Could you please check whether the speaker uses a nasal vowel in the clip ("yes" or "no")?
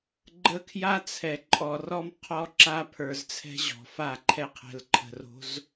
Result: no